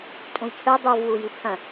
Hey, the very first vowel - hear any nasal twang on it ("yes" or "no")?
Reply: yes